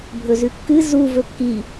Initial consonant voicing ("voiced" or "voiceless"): voiced